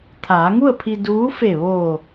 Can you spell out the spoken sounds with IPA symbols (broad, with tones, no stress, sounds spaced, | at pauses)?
t̪ʰ aː˩˧ ŋ u˥˨ ə̯ pʰ i˧ d uː˧˥ f e˧˩ ʋ oː˧˩